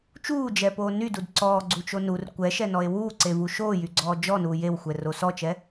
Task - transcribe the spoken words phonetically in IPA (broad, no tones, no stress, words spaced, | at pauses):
t͡ʃuːd͡ʒɛpoː nydud ǀɔːɡ͡ǀut͡ʃo nur kʷɛʃɛnɔe̯ wuːǀevu ʃoːjyɡ͡ǀɔː d͡ʒɔnuː jewxʷɛro sɔt͡ʃɛ